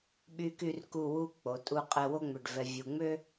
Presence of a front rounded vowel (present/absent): present